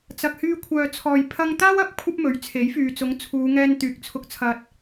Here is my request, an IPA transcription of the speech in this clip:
t͡s ɐ˨ k̚ h yː˧ kʷʰ œː˨ t͡sʰ ɔː˨ j pʰ ɐ˥ ŋ t̪ aː˥ w ɐ˨˥ p̚ kʷʰ ɐ˥ p̚ m ɵ˨˥ ɥ t͡sʰ e˨˥ j f yː˨ t͡s ʊ˨˥ ŋ t͡sʰ uː˨˧ ŋ ɛː˧ n t̪ yː˨ k̚ t͡sʰ ʊ˧ k̚ t͡sʰ ɐ˧ t̚

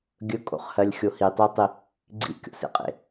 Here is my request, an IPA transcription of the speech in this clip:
ɡʲ ɵ kʼ o̰ χ h ɜ lʲ xʲ o h i tˤ o tˤ i | ɡ͡ǀ ḭ kʲ o̰ s ḛ qʼ ḛ

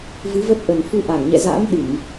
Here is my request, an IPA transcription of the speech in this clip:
v ɨ˨˦ v ə˦˥ t̚ ʔ ə˨˩ n f u˧ ʔ a˧˩ ŋ ɲ ɛ̰˧˨ z a̰˧˥ m ɗ ɨ˧˩˨ ŋ

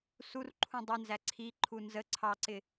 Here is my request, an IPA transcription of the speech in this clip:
s u r ǃʰ ũ dˤ ʊ n z æ ǀʰ i ǃʰ u n z ə ǀʰ ɑ ǀ ɪ

